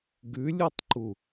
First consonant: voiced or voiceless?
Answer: voiced